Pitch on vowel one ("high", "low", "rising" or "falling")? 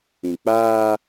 low